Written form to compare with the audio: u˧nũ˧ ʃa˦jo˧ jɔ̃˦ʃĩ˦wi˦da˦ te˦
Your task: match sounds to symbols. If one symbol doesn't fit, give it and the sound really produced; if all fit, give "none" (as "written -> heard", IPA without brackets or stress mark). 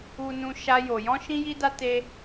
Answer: w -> j